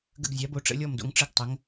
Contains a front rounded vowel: no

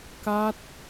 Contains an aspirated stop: no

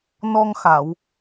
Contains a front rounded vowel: no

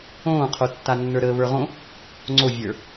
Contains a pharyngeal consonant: no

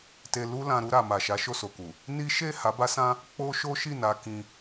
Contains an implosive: no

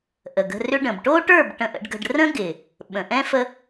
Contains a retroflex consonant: yes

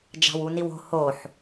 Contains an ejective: no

